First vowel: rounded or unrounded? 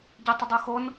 unrounded